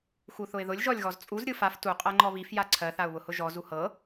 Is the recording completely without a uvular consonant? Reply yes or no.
no